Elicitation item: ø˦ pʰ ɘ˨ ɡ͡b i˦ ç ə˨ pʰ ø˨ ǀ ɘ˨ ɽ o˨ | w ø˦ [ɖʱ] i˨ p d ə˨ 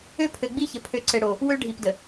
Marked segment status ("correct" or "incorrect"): correct